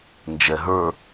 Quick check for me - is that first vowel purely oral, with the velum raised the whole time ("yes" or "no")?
yes